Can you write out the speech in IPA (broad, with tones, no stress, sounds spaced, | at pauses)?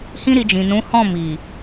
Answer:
h ĩ˦ ɾ i˧ d͡ʒ ĩ˨ n ũ˨˦ h ɔ̃˦˨ m i˨